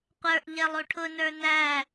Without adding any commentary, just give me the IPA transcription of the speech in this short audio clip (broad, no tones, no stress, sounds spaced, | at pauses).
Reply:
qʷ ə˞ ʔ ʎ ɛ lˠ u ʈʰ ʊ n ə˞ n æ